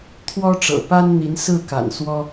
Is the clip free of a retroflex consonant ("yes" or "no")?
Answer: no